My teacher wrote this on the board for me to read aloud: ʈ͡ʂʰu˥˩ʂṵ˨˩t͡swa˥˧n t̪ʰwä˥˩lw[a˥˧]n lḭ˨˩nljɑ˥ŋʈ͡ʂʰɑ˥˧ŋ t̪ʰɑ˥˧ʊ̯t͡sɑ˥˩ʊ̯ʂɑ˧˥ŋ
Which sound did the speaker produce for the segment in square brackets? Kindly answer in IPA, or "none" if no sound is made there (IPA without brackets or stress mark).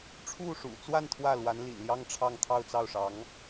a˧˥